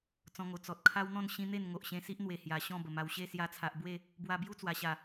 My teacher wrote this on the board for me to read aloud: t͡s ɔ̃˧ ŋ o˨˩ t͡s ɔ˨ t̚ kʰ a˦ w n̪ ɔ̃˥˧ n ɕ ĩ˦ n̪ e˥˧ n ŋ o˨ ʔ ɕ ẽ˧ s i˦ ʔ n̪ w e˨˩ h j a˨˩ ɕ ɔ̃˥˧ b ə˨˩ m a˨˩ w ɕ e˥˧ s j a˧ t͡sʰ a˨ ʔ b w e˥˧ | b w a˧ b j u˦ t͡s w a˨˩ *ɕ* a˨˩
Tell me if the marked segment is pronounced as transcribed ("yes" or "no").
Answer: yes